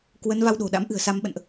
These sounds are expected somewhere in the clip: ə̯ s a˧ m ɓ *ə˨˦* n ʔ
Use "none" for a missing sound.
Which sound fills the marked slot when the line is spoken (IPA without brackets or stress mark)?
ə̰˧˨